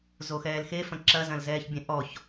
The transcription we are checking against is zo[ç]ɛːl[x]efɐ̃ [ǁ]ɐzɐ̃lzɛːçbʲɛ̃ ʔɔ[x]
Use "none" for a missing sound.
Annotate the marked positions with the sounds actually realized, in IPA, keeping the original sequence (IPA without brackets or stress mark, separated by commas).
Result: x, x, ǁ, ç